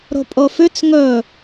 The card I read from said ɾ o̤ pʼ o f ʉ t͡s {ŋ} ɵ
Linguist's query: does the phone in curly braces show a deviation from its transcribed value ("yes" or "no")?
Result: no